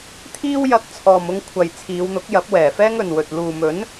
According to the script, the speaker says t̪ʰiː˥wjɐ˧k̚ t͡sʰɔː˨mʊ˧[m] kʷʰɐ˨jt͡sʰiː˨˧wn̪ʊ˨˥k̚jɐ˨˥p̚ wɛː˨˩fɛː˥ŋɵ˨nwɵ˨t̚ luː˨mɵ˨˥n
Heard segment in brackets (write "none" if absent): ŋ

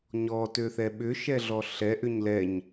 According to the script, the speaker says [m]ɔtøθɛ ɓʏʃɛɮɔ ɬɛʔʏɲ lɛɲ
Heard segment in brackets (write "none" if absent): ɲ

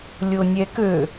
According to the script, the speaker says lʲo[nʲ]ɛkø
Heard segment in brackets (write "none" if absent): nʲ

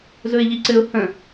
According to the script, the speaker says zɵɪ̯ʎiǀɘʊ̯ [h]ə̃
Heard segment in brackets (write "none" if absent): h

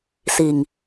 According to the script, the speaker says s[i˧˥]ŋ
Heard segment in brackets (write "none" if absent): i˨˩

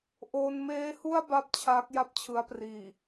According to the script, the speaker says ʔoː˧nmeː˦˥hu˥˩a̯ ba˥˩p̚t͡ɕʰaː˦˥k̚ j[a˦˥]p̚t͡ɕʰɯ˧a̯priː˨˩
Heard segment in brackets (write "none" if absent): a˥˩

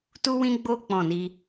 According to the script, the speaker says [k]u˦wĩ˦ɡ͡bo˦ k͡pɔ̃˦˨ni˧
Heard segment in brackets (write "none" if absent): t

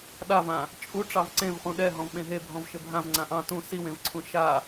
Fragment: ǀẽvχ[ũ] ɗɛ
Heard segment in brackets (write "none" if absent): ũ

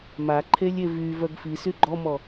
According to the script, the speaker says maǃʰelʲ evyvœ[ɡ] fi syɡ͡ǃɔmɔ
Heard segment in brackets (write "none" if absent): ɡ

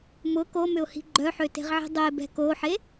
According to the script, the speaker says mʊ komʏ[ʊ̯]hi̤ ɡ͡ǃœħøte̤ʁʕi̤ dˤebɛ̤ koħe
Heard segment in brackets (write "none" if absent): ʊ̯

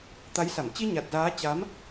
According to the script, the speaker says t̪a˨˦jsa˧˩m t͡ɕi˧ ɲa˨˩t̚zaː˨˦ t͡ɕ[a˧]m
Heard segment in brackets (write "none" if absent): a˨˦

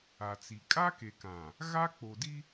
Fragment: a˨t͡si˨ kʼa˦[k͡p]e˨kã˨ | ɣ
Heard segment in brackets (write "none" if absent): k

